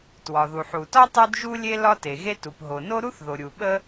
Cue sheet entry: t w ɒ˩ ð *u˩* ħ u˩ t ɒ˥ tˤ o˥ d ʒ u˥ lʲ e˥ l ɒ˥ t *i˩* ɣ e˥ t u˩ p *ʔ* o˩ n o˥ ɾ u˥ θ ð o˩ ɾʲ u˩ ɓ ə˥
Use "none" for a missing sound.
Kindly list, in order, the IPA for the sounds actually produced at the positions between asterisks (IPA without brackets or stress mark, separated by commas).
u˩, e˩, ɦ